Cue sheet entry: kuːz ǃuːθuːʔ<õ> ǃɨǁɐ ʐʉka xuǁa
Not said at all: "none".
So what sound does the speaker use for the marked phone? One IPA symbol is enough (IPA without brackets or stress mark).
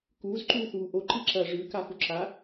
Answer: o